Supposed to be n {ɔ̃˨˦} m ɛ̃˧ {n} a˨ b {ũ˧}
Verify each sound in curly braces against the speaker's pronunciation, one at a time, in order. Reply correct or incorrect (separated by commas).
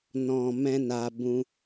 incorrect, correct, correct